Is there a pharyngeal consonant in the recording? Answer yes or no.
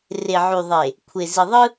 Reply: yes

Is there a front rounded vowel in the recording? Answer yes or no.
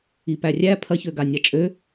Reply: yes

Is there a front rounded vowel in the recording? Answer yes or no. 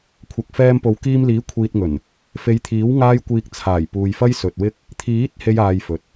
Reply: no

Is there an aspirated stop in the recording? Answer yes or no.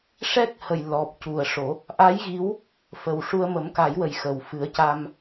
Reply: no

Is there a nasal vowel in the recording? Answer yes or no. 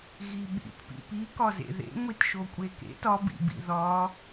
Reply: no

